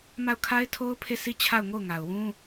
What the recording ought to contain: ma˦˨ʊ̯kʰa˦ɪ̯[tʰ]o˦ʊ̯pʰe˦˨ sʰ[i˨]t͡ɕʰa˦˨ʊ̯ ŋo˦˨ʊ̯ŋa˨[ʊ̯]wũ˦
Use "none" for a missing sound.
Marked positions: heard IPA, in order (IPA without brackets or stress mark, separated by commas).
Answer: tʰ, i˦˨, ʊ̯